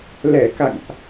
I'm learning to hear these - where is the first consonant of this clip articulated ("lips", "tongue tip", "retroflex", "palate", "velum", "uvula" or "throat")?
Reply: tongue tip